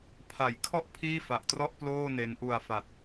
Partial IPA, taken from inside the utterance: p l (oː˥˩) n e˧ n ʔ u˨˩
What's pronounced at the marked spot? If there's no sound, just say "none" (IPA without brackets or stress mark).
oː˥˩